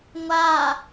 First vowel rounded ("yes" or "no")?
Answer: no